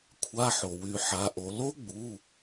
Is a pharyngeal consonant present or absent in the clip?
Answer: present